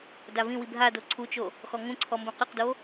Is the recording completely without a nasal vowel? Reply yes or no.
no